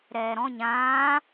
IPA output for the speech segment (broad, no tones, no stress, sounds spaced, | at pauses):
ɾ ɛː ɾ ɔ̃ ɲ ãː